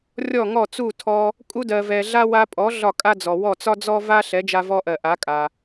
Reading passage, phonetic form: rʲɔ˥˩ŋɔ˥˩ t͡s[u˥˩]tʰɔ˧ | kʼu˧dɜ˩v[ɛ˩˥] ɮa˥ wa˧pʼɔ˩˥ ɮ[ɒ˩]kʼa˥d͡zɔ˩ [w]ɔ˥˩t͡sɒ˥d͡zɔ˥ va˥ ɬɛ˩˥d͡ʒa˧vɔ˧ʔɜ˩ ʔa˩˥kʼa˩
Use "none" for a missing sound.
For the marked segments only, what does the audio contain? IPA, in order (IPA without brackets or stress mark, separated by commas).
u˥˩, ɛ˩, ɒ˥˩, w